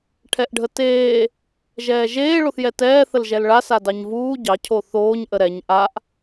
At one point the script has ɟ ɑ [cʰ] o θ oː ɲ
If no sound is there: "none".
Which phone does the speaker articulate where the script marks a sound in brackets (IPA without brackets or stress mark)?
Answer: cʰ